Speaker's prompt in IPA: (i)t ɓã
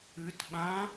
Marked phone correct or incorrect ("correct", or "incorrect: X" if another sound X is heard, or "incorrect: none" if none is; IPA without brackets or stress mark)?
incorrect: ɨ